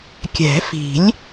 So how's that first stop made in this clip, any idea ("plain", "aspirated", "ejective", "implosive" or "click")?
plain